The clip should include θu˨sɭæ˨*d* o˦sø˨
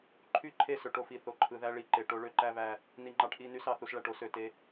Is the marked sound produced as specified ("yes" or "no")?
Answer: no